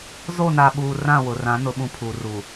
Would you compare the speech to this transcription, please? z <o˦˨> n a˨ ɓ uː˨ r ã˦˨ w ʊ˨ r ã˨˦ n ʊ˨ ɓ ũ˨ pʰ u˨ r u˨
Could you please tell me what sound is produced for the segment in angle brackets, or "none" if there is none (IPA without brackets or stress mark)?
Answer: o˦˨